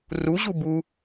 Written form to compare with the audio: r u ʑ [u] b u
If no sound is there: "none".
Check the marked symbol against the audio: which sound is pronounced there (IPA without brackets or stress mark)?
u